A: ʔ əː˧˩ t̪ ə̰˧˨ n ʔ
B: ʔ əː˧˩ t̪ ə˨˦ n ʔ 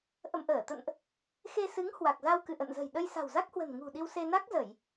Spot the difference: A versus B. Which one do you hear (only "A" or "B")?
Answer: A